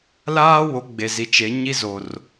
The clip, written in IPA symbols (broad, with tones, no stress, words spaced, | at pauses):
laː˦wo˨˦ ɡ͡be˨zi˨t͡ʃe˨˦ ɲi˦zo˨r